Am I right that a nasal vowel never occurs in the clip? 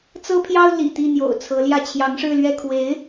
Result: yes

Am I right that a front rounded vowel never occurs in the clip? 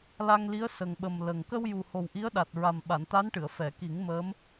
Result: yes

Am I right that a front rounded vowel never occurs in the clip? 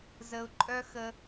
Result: no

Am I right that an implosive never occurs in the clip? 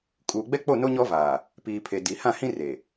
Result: yes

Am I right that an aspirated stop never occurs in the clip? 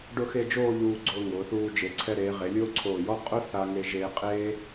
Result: no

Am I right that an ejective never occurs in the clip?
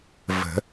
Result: yes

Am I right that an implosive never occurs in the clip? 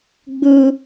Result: yes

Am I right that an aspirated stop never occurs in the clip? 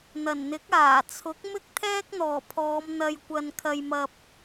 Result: no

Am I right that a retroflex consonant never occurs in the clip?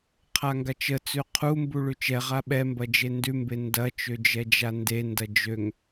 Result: no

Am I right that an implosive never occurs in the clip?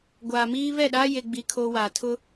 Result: no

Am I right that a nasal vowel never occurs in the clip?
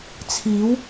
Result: yes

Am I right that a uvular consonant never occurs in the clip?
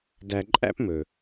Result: yes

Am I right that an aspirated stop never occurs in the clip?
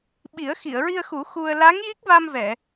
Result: yes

